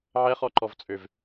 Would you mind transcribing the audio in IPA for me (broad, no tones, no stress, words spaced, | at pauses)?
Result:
ʕɛχɔǃɔvt͡sʼøv